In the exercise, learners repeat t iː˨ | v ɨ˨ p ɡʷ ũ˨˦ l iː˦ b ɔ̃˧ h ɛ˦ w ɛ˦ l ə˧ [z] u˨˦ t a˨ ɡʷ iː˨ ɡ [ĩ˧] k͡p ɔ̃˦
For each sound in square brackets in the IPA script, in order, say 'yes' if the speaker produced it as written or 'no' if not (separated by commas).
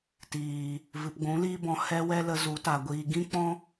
yes, no